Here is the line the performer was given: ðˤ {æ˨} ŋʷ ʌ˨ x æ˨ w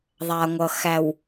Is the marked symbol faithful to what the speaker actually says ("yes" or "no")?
no